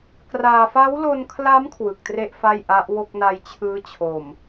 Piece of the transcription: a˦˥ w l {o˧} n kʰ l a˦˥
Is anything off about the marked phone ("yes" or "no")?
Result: no